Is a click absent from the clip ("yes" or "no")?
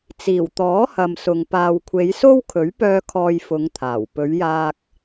yes